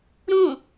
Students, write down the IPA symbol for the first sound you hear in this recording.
ɾ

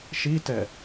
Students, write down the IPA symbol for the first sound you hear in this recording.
ʃ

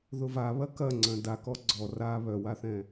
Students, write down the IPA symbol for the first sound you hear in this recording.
ð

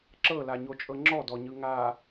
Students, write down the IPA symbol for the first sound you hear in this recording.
ǁ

